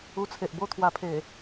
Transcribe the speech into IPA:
u˧ t͡sʰ e˨ ʔ b o˦ t̪ʰ w a˧ pʰ e˨˩

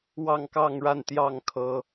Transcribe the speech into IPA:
w ɑ˥˧ ŋ k ɑ˥˧ ŋ ɻ a˥˧ n t̪ j ɑ˥˩ ŋ kʰ ɤ˥

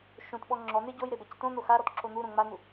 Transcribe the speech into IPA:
ʃ õ t ɓ ɔ ŋ͡ǁ ɔ n̪ e ɟ o j ɾ e b ɛ c t õ n̪ o x a ɾ ɔ t ǁ o n̪ u ɾ õ ŋ͡m a n̪ u

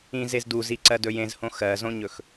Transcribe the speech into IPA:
ĩ z e z d u z i ǀ ɜ d ɵ j ẽ z h õ x ɜ z õ ɲ ɵ x

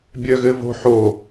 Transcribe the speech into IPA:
bʲ œ ɣ ɘ v o̤ ħ o

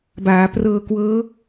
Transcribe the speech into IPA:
b aː˩˦ p r ɤː˧ k w ɤː˦˥

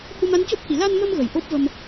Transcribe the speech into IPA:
h u˧ m a˧˥ n c o˦˥ p̚ h i˨˩˨ l a˧ n m ə˧ m ɣ ə˨˩ j ʔ o˦˥ p̚ v ə˧ m

